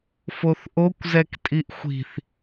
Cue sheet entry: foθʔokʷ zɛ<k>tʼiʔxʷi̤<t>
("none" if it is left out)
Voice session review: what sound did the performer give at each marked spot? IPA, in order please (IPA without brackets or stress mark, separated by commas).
k, θ